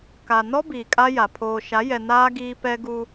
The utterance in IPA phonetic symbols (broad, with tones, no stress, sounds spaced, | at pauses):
k a˨ n ɔ˦ b iː˨ kʼ a˦ j a˨ pʰ oː˨ ʃ a˨˦ j ɛ˨ n aː˦ ɡ iː˦ p ɛ˦ ɡ u˦